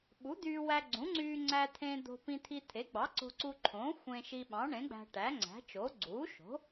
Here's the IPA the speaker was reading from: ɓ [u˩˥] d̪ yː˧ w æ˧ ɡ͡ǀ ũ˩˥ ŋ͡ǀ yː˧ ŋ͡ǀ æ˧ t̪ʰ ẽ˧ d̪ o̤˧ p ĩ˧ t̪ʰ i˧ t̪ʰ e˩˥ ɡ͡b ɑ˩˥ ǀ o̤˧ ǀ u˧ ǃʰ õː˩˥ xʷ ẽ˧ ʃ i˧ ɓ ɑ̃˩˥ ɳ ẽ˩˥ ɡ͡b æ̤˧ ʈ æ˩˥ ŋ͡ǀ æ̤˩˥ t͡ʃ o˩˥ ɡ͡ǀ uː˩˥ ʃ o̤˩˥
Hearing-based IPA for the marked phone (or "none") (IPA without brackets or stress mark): u˩˥